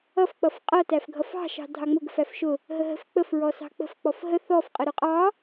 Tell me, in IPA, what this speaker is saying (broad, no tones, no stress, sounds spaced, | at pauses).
ʌ f k͡p ʌ f qʼ ʌ t æ f ɡʱ ʌ f ɑ̤ ʃ ɑ̤ dʱ ɑ ŋ͡m ʊ ɡ ə̤ f æ f ʃ ʊ | ɦ ə ɦ ə̤ f k͡p ə f ɹ ɔ s ɑ̤ k͡p ə̤ f k͡p ɔ f ɦ ə θ ɔ f qʼ ə ɾ ʊ qʼ ɑ